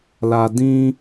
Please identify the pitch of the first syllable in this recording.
high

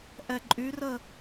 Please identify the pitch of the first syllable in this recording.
low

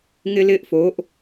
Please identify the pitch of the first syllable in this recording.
high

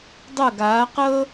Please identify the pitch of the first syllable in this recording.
falling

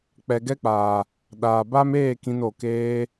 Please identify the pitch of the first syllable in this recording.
low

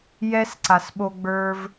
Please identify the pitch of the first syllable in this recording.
high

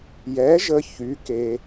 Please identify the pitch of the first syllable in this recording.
rising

